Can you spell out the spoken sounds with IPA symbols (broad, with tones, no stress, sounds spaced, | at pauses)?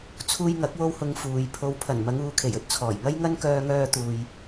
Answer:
t͡sʰ uː˧ j ŋ ɐ˨˥ k̚ w o˥ w h ʊ˧ ŋ f uː˨˧ j pʰ o˨˧ w pʰ ɐ˨˩ n m ɐ˨˧ ŋ uː˨˧ kʰ e˨˩ j ɵ˨˥ t̚ t͡sʰ ɔː˨˩ j ŋ ɐ˥ j ŋ ɐ˥ n k œː˧ ŋ œː˧ t̪ uː˨ j